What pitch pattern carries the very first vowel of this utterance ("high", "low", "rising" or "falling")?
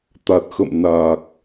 low